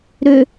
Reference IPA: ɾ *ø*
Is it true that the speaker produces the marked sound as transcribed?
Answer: yes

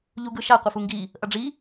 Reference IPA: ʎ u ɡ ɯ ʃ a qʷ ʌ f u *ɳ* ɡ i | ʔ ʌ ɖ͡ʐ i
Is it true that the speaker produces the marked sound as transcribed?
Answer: no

